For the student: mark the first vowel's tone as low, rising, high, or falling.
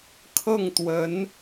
falling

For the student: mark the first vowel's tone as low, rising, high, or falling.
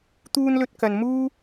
high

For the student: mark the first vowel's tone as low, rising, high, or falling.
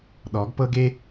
rising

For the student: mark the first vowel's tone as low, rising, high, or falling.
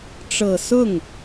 low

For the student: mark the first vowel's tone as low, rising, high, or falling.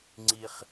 high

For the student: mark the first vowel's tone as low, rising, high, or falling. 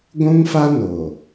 high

